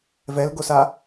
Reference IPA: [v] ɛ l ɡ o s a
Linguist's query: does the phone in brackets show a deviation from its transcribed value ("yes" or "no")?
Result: no